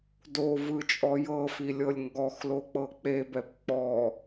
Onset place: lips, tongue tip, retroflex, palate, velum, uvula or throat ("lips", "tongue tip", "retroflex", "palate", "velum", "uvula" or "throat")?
tongue tip